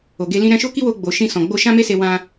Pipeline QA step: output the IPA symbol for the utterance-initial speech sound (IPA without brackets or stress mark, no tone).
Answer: o